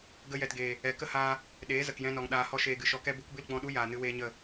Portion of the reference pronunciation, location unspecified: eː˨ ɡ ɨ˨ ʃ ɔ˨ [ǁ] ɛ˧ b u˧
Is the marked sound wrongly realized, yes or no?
yes